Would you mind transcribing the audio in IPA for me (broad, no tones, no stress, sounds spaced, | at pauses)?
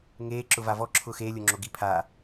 ŋ eː ǁ ʊ v a v ɔ ǁʰ ʊː x eː lʲ o ŋ͡ǁ o ɡ i pʰ a